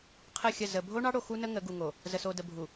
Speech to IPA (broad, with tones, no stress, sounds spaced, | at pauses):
qʰ ə˦˨ xʲ ə˦˨ z ə˨ bʱ o˦ ɳ ɑ˦ ɽ o˨ x u˦ n ə˦ ŋ ə˨˦ ɡ u˨ ŋ o˨ | z ə˨ s o˨ d ə˨ bʱ u˨